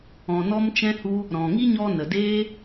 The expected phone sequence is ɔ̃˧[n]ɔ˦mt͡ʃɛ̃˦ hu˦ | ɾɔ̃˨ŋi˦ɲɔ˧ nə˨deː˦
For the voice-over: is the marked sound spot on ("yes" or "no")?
yes